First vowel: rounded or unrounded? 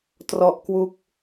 rounded